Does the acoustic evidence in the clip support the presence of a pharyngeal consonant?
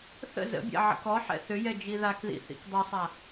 yes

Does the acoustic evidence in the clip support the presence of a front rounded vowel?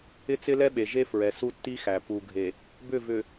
yes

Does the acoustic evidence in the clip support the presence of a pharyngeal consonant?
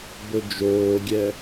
no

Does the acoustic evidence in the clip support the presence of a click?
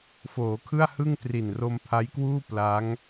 no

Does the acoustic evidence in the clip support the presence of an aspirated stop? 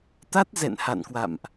no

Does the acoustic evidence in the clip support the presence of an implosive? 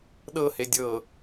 yes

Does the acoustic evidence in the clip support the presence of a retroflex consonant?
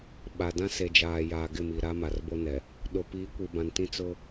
no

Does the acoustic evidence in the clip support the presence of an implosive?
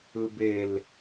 no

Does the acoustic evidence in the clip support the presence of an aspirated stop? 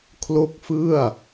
yes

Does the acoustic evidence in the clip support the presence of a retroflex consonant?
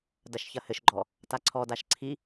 no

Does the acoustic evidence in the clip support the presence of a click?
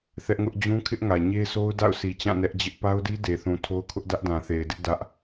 no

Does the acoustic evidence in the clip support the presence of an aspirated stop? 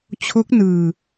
yes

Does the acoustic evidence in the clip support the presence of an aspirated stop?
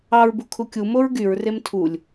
yes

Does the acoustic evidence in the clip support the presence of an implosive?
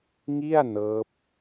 no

